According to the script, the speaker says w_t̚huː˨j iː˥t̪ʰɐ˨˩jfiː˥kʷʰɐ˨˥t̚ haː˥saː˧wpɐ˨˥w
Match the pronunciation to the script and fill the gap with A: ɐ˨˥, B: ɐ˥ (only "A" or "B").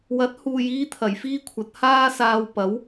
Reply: A